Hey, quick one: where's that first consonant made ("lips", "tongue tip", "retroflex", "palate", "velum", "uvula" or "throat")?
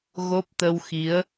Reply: velum